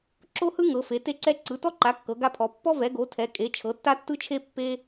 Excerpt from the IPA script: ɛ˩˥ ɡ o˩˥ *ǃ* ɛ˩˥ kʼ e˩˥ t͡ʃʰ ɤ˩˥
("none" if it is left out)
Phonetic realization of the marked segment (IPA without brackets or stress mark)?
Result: tʰ